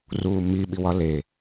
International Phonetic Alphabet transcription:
ruːmiɓiwɒ le

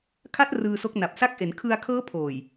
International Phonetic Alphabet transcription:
kʰa˦˥t̚ rɯː˧so˦˥k̚na˨˩p̚ sa˦˥k̚ʔe˩˦n kʰɯ˧a̯kʰɤː˦˥ pʰoː˨˩j

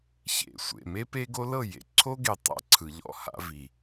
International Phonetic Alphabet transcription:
çḛ˨sʷḛ˨ me˦pe˦ɡo˦lɤ˦˨ jḛ˨ǀʰo˦ɡe˨ tˤa̰˦ ǀʰɯ˨ʎɔ̰˦ha̰˦vi˨

